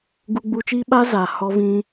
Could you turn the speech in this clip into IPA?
ɡu˧ɡ͡bu˧t͡ʃiː˦ ɓa˦za˨ hɔ˧vĩ˧

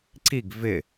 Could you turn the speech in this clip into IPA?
ǀiɡ vɪ

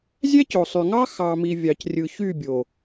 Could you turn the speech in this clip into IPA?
zʲæ˦co˨sˤy˨ŋɑ˦ xɑ˨mi˨ vʲɑ˨crʲɯ˨çy˦˨bʲo˨

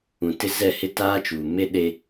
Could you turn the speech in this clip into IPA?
ũ˨tɪ˦ zɛ˦˨hɪ˦taː˦t͡ʃuː˨ me˦ ɗe˦

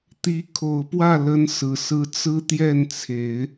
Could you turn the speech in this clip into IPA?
t̪i˧˥ kʰo˨˩ʊ̯pwä˥˩ lə˧˥nsɹ̩˨˩ sɹ̩˧˥t͡sɹ̩˥t̪jɛ˥˩nt͡sʰe˨˩˦ɪ̯

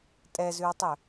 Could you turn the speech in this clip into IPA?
tʼɛzʉwtˤɵ

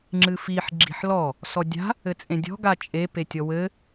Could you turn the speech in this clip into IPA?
ŋ͡ǁɨfiħ ɡ͡ǁi̤ħlɔ | sɔdʲa̤ | ɘt͡sʼẽdʲɔ̤ ɡat͡ʃʼe petʲɔwɘ

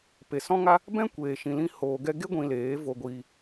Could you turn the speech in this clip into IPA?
pe˨sɔ̃˦ŋa˦ | bɛ̃˦kʷeː˨ ʃĩ˨lĩ˧ hoː˨ɡɛ˧ ɡe˦ ɡʷĩ˧leː˨˦ vo˧ɡʷiː˧

